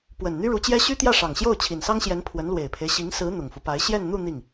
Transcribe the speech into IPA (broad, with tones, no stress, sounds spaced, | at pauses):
p w ə˨˩ n n̪ y˥ ɻ u˧˥ t͡ɕ j ɛ˥ ɕ y˥ t̪ j ä˥˩ ʂ ɑ˨˩ ŋ ɕ j o˥˩ ʊ̯ t͡ɕʰ i˨˩ n s ɑ˥ ŋ ɕ j ɛ˧˥ n pʰ w ə˧˥ n l w e˨˩ ɪ̯ pʰ e˦ ɪ̯ ɕ i˧˥ ŋ s ɹ̩˧˥ n̪ ʊ˨˩ ŋ f u˦ p a˧˥ ɪ̯ ɕ j ɛ˥˧ n n̪ u˥˧ n̪ i˥˩ ŋ